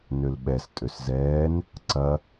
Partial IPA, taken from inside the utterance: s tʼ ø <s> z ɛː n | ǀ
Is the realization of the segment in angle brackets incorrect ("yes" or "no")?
no